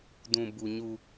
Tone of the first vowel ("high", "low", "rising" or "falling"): low